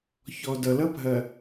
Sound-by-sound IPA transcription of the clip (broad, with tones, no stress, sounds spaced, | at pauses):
ç ɔ˨ d ʌ˨ l ʌ˦ bʱ ɐ˨